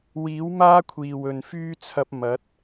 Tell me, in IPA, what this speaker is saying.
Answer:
wiː˨˥wmaː˥kʷʰiː˨˩w ɵ˨nfyː˥t͡sʰɐ˧p̚ mɐ˨˥t̚

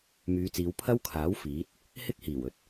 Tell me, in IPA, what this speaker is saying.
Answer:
myː˨˧t͡siː˨˧wpʰɐ˥wkʰaː˨˥w fiː˨˥t̚ | hɪ˥k̚hiː˨˩wɵ˨˥t̚

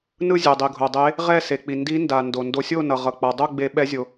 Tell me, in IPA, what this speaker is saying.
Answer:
nɯ˥˨zʲɛ˩ dˤi˩ɡʱo˩ dˤe˨˦ | ʁɛ˥˨se˩k͡pi˩ ndi˨˦nda˩ ndo˩ ndo˨˦sʲo˥˨nʌ˩ ʁʌ˩k͡pa˩dˤo˥˨ ɡ͡be˨˦ ɓɛ˨˦zʲo˩

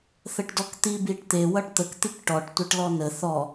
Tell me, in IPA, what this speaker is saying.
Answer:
θəʈdɔkt̪i biʈt̪e wʌʈt̪ək t̪ikʈɔʈ tʷʌʈlɔnə θɔ

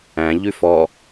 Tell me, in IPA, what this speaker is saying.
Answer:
æ̃ʎʉ fɔ

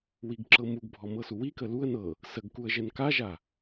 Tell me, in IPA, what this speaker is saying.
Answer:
wiɡǁɤmuɡbʱɔ mɤsuwikə luə̯ nɤ | səɡ kuə̯ʒɛnkaʒa

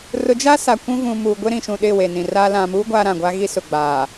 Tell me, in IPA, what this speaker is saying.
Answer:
rʊ˨˦d͡ʒa˦ sa˨kʷũ˦ vũ˨ muː˨ɡʷɪ˦ ɾĩ˨ʃũ˨ ɗɪ˦˨we˨nĩ˨ra˦ lã˨mu˦ ɡʷaː˦ɾã˨ɡʷa˦ɣi˦ sʊ˨ɡ͡baː˨

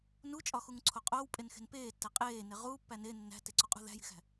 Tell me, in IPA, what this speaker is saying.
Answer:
nut͡ʃʼɒxuŋǀʰo qʼoːwpʼenxe̤n peːtːæ qʼeːne ʁuːpːæ ne nːæ̤teǀoqʼṳ ðæ̤ji̤xæ̤

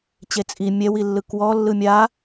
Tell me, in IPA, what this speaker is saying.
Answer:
t͡ɕet͡sʼi mʲɛwi lːɯkwɔ lːɯmʲa

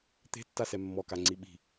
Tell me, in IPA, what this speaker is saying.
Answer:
t̪e̤tːasɛ mːɔkaŋ͡ǀi ɓi̤

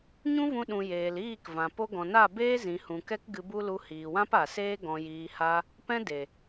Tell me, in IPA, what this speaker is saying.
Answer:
ɲũ˦vũ˧ ɗũ˨jeː˨l iː˦˨kvã˨ po˧ ɡɔ̃˨na˦˨ beː˦ zĩ˨hũ˨kɛ˧k ɡɨ˧bu˦lu˧ hiː˨wã˦pa˨seː˦ ɡɔ̃˧jiː˧ha˦ | pɛ̃˦de˨

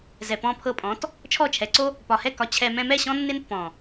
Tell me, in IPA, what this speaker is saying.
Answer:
zɛ˨pɔ̃˧pʰɤ˧pʼɔ̃˨˦t | t͡ʃʰɔ˦˨t͡ʃʰɛ˨ǀo˦ | pɒ˨hɛ˦˨ kɒ˧t͡ɕʰɛ˧ mɛ̃˧mɛ˦˨ ɕɔ̃˦nːɪ˦npːɔ̃˨

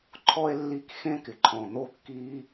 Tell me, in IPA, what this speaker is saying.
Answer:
ǃʰɔ˥e̯ lːi˥k xẽ˥kɪ˩ǃʰɔ̃˩ n̪o˥kːiː˥

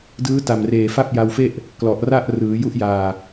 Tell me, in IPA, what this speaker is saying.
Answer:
dɯː˦˥ ta˨˩mreː˨˩ fa˥˩p̚ja˧wfe˥˩ʔ | klɔ˨˩ʔra˥˩ʔ rɯː˩˦ju˦˥ʔjaː˨˩

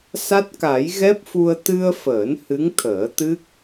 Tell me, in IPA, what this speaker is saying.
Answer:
sa˦˥t̚ka˨˩˦j ɣɛ˦˥p̚fu˧ə̯ t̪ɨ˧ə̯fəː˨˩˦n hɨ˧˥ŋt̪ʰəː˨˩˦t̪ɨ˦˥k̚

